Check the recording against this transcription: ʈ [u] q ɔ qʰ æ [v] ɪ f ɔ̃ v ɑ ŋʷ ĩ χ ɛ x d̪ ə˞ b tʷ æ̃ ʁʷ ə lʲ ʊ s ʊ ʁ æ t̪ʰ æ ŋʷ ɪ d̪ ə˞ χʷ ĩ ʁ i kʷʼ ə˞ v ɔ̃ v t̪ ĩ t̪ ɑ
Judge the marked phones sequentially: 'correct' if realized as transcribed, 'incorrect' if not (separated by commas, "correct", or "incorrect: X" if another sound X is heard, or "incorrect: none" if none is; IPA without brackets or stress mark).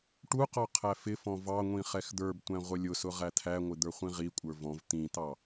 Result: correct, incorrect: f